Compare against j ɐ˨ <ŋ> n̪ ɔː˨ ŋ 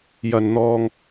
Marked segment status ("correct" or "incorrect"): incorrect